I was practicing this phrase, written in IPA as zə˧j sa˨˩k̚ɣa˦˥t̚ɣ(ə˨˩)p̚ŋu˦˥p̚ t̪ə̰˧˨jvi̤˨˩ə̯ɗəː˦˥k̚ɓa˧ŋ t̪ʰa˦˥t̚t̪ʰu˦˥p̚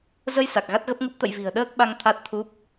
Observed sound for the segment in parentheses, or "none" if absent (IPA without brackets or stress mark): ə˦˥